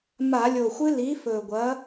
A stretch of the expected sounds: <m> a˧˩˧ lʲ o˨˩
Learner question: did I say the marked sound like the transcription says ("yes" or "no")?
yes